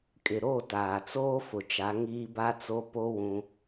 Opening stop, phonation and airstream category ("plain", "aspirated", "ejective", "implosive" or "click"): ejective